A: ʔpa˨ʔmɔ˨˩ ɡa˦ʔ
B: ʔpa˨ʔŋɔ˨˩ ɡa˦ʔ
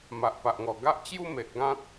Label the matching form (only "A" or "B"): B